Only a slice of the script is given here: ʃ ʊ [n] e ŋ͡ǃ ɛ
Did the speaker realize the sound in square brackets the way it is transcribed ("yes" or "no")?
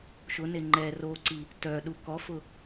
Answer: yes